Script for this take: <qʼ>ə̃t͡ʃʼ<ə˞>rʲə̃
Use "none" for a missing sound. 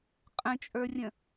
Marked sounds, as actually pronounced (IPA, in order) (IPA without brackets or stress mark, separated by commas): qʼ, ə˞